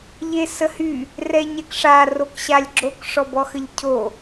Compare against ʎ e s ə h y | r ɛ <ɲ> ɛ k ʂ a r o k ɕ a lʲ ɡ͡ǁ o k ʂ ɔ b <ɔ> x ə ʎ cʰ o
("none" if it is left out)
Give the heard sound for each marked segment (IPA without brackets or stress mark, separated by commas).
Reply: ɲ, ɔ